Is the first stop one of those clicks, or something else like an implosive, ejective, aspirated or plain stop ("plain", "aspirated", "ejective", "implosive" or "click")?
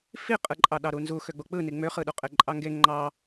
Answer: ejective